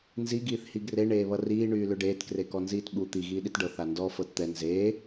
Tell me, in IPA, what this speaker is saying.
n z i ɡ iː θ h i ɡ r e ɳ eː β ʌ r iː ɳ yː l ʏ ɖ eː t k r e k ɔ n z iː t ɓ u t̪ i ɣ iː ɗ i t ɖ ɤ θ a n d ɔ f ɤ t t̪ ɛ n z eː

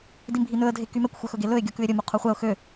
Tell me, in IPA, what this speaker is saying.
d i m bʱ i n ɵ ə̯ dʱ e k y m ɛ kʷ xʷ œ x ɵ ɡ e l ɵ ɪ̯ ɡʲ o k ʉ ɪ̯ ɾʲ ɵ m u qʰ u χʷ ɛ ʊ̯ x ø

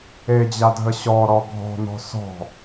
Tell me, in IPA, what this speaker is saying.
e d͡ʑ a dʱ ə ɕ ɔ ɾ ɔ ɡʱ ɔ̤ n̪ ɔ̤ s ɔ̤

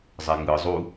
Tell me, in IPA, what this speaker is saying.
zˤ ɛ ŋ ɯ zˤ u

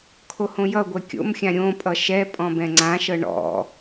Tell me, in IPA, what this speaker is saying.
kʰ o h õ j ʌ ɡʷ ɛ kʲ o̰ m xʲ ã ɾʲ õ pʼ ʌ ʃ ɛ pʼ ɔ̃ b ɛ̃ ŋ͡ǀ ã ʃ ɤ ɳ ɔ̰

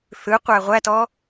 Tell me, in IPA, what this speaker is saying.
θ ɯ qʷ æ ʁʷ æ t ɔ

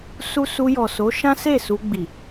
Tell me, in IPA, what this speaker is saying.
s u˦ s u˧ j ɔ˨ s o˨˦ ʃ ã˦ s e˦˨ s u˧ ɡ͡b i˨

